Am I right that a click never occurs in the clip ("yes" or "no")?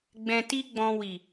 yes